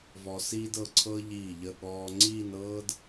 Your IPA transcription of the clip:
v ɔ˧ s iː˥ d ɤ˧ ǀʰ ɤ˥ ʎ iː˧˩ ʎ ə˧˩ ɠ ɔː˧ ŋ͡ǀ iː˥˧ n ɤː˥ d

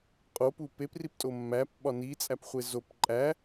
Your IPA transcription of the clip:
qʼ o p u p e p r i p tʼ o mː æ p ɓ ɒ n i t͡sʼ æ p χʷ e z o p ǃʼ æ

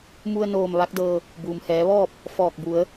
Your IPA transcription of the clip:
m u˧ ə̯ n oː˧˩ m ʋ a˧˥ k̚ d ɤː˧ | b uː˩ m h ɛː˩˧ ʋ ɔː˥˨ p̚ | f ɔː˧˩ k̚ b u˩˧ ə̯

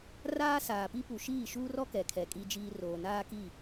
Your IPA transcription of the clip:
r aː˦ s aː˨ p i˦ p u˨ ʃ iː˦˨ ʃ uː˦ r ɔ˦ k ɛ˨ kʰ ɛ˨ kʼ i˦ d͡ʒ iː˦ r oː˨ n aː˦ k i˦˨

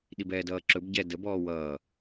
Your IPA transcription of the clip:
ɗ i b ɛː d ʌː ǁ ɵ b ɟ ɛ d ə b ɔː w ʌː

